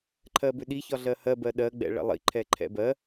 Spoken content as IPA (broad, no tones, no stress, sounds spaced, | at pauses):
ǃʰ ɜ b ʏ ɗ i ç ɒ ɮ ɜ h ɜ b ɜ ɗ ɜ ɡ͡b ɛ̰ ɭ ɛ̰ lˠ ḭ ǃʰ ɛ ǃʰ ɛ̰ b ɜ